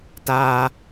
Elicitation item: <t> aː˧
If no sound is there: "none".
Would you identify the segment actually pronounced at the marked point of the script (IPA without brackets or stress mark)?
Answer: t